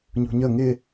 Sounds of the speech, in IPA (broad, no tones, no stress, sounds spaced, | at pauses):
ɲ ṳ ɲ ə ŋ ɪ